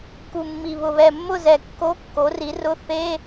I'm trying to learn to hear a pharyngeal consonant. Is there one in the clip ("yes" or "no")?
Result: no